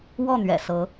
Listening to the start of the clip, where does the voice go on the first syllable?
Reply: falling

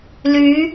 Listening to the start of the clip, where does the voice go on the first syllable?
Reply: rising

